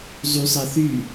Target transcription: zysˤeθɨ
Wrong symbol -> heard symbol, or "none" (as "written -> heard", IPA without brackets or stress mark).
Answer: ɨ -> y